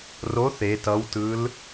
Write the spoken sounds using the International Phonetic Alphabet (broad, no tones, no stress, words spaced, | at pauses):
ro θe tʌwtɯl